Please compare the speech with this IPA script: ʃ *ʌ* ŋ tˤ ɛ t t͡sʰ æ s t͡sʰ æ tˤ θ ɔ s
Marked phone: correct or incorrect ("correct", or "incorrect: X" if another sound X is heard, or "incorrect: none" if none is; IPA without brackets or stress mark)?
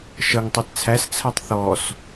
correct